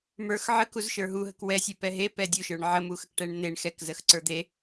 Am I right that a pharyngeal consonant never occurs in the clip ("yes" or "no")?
no